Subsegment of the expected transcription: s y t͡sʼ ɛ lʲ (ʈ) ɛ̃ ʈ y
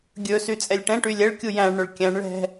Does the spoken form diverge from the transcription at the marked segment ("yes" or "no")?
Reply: no